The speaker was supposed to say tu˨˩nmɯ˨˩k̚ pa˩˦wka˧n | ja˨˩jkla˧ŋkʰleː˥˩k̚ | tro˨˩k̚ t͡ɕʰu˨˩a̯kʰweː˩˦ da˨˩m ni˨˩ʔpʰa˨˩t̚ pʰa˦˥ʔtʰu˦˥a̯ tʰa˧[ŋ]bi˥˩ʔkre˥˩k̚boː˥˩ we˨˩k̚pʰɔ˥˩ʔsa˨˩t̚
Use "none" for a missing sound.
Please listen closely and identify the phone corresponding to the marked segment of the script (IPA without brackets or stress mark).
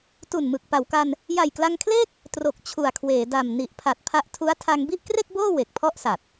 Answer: ŋ